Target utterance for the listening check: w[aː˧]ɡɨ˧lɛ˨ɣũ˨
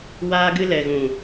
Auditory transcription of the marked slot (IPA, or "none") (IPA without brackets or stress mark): aː˧